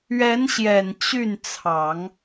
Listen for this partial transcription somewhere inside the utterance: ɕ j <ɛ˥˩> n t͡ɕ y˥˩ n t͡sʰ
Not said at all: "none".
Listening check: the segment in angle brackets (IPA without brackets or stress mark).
ɛ˨˩